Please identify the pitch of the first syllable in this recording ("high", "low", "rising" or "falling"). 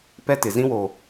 high